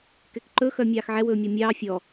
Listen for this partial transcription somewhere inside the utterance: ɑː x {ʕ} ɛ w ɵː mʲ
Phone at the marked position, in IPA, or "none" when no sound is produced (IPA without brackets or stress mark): ʕ